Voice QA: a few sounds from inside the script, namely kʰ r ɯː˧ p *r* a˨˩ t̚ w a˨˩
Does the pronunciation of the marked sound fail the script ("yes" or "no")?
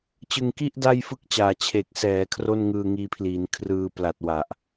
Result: yes